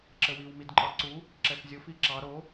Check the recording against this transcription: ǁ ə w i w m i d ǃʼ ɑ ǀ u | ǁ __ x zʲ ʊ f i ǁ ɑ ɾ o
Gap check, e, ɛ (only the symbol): ɛ